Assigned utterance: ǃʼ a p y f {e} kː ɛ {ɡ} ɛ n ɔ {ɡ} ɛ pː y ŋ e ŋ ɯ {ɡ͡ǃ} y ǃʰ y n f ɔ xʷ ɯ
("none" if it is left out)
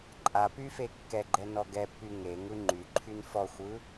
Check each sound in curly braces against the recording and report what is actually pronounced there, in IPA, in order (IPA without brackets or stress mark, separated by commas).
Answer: e, ɡ͡ǃ, ɡ, ŋ͡ǃ